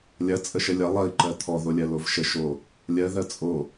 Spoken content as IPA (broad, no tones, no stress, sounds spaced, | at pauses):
lʲ ɐ t͡sʼ ə ʃ ə lʲ ɐ lˠ ɐ i̯ ǃ ɜ t̪ʰ ɔ ð o lʲ ɜ l o v ʃ ə ʃ o | lʲ ɜ ð ɜ t͡sʼ o